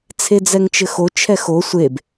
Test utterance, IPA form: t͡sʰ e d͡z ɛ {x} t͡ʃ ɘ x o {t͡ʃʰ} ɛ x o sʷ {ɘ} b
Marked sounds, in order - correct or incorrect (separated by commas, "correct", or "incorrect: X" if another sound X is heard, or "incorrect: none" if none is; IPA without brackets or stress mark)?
incorrect: ŋ, correct, incorrect: e